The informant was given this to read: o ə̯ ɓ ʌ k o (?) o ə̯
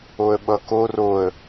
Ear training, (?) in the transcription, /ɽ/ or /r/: r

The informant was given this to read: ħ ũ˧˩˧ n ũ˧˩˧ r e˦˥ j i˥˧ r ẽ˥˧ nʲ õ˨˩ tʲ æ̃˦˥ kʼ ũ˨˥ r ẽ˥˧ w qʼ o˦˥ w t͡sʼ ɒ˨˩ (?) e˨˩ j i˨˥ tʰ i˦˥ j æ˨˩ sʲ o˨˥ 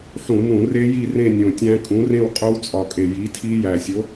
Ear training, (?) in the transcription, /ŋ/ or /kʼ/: kʼ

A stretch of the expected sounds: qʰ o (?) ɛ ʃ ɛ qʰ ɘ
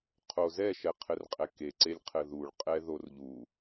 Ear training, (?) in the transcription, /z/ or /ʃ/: z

